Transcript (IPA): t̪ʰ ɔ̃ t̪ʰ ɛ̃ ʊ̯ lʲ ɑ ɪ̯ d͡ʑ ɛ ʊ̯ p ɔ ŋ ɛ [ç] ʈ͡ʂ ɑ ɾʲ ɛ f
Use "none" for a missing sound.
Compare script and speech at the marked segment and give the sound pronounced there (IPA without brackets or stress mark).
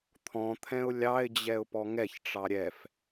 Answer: ç